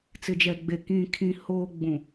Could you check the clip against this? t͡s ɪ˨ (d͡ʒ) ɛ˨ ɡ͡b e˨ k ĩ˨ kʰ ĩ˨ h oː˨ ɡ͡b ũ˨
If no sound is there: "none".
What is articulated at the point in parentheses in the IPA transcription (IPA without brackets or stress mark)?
d͡ʒ